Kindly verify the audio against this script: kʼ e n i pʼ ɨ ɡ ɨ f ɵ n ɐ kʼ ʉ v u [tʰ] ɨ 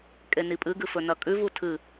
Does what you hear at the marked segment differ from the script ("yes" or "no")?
no